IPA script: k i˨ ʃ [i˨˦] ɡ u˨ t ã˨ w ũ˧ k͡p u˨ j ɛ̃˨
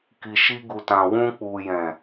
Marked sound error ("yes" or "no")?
yes